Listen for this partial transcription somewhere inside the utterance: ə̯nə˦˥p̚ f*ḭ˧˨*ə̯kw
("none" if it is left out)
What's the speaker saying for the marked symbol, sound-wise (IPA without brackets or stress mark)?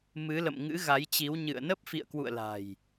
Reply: ḭ˧˨